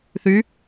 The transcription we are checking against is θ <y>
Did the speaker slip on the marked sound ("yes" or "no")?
no